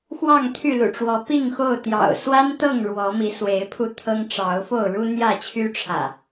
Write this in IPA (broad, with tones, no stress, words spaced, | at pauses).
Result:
xwɑ˥˨ŋt̪ʰy˥˨lṵ˨˩ʈ͡ʂwɔ˨˦ pi˥˨ŋxo˥˨ʊ̯t̪jɑ̰˨˩ʊ̯ swa˦n t̪ɤ˥˨ŋ ɻwɔ˨˦mi˨˦swe˨˦ɪ̯pʰu˧ t̪ʰɤ˦ŋʈ͡ʂɑ˨˦ʊ̯ fo˥˨ʊ̯ɻu˦n̪jä˥˨t͡ɕʰy˦ ʈ͡ʂʰä̰˨˩